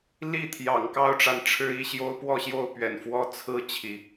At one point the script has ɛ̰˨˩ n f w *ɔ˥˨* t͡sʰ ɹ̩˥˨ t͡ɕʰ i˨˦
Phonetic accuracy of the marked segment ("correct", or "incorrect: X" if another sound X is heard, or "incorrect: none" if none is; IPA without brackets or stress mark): incorrect: ɔ˦